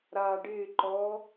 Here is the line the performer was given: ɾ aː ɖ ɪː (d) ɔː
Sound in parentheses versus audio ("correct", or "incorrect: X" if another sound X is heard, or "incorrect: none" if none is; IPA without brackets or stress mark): incorrect: ǃ